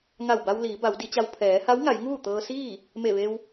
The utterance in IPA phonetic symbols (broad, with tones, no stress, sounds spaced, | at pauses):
ŋ a˧˩ w b a˧ w l iː˩˧ b a˩˧ w d i˩˧ t͡ɕ a˧ w pʰ ɛː˩˧ h a˧˥ w ŋ a˩˧ j ŋ uː˥˨ t̪ ɤː˧ s iː˥˨ | m e˧˩ ʋ e˧ w